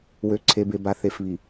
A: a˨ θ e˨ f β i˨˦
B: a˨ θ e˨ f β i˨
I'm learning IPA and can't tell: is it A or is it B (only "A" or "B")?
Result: B